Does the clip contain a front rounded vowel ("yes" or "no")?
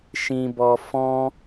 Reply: no